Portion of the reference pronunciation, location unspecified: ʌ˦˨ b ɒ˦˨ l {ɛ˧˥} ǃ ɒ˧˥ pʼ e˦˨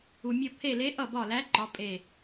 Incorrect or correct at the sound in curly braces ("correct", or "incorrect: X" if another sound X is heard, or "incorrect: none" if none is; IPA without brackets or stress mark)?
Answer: incorrect: æ˧˥